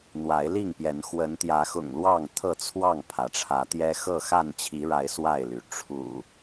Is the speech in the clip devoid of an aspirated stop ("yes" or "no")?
no